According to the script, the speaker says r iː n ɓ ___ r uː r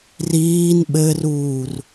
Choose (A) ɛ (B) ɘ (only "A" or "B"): B